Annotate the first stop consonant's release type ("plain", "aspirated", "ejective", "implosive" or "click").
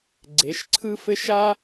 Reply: click